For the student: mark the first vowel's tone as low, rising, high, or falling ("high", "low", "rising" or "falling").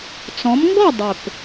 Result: rising